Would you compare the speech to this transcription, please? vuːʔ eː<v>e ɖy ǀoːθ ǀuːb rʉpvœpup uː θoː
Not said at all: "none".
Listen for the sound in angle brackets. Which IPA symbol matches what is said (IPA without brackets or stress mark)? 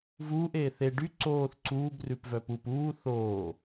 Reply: θ